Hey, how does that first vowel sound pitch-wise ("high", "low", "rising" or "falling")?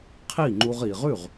falling